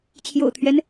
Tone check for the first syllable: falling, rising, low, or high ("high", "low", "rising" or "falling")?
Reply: low